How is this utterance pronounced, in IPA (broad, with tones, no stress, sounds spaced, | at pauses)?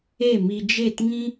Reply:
e˦˨ m i˧ d͡ʒ e˦˨ t ŋ ĩ˦